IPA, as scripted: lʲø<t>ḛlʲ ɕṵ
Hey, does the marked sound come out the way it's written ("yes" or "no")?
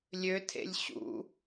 no